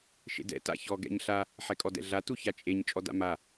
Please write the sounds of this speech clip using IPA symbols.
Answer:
ʃ ḛ d ɛ̰ t a̰ ç ɔ ɡ ɛ̰ ɲ ɬ a | ħ ɛ kʼ ɔ d ɛ̰ ɮ a t u ç a t͡ʃʼ e ɲ t͡ʃʼ ɔ d a̰ m a

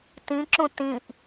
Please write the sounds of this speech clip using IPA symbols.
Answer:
t ĩ ǁ ũ t ĩ ʔ

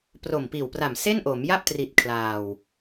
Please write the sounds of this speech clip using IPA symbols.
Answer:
p r o˨˩ m p iː˨˩ w p r a˨˩ m s e˥˩ n ʔ o˩˦ m j a˥˩ p̚ t r i˨˩ t̚ kʰ l aː˨˩ w

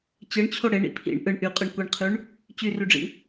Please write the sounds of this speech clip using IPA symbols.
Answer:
t͡ɕ ɯ ɳ t͡ɕʰ o ɽ e ɳ ḭ pʰ ḭ ɳ ʔ ɯ ɳ ʔ y qʼ ɯ ɳ kʷ i ɳ qʰ y ɳ | t͡ɕ y r y ɖ͡ʐ ḭ

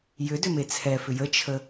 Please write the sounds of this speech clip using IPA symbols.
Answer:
j ʏ d ʏ m e t͡sʰ ɛ f ʏ j ə t͡ʃʰ ə

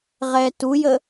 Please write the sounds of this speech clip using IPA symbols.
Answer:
ʁ ɛː t u j ə

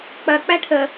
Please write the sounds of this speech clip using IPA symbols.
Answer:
k͡p ɐ k͡p æ ʈʰ ə

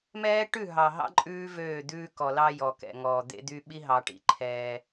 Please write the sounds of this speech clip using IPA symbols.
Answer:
m ɛː˦ ʈ ʉ˦˨ ɦ ɑ˨ ɦ ɑ̰˦ ǃʼ ʉː˦ v øː˦˨ d̪ ʉː˦ k ɔ˨ l ɑ˦ j ɔ˨ k ɛ̰˨ ŋ ɔː˨ d̪ ḛ˦ d̪ y˦ ɓ i˦ ɦ ɑ˨ ʈ ḭ˨ ǃʰ ɛː˦

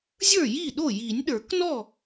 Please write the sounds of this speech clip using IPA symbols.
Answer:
zʲ ə˞˥˩ j i˥˩ ɗ o˥˩ j i˨˩˦ nʲ ɗ ə˞˨˩˦ k n ɔ˥˩

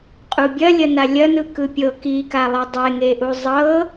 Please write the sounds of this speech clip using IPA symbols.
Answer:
qʼ u bʲ ɐ lʲ ɐ n a lʲ ɐ n ɯ k ɯ pʲ ɤ k i k a lˠ ɯ dˤ e ŋ e ʔ u zˤ ɤ

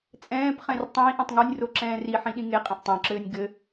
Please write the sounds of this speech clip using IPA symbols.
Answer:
t͡sʼ ɛ̃ː p χ ɛ̃ r tˤ ĩː ʔ ĩ tˤ ŋ o nʲ r o ǁ ɛ̃ː r i ħ ĩ ɗ ĩ ŋ e qʼ ẽ ʔ tˤ õ ǁ ɘː nʲ ɡ ɘ

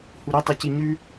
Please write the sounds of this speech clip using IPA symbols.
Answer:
h u ɾ i tˤ i c i ɲ ʉ

